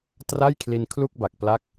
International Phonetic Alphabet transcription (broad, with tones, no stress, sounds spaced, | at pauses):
t r a˥˩ j kʰ l i˧ n kʰ l u˥˩ k̚ b a˨˩ k̚ p l a˦˥ k̚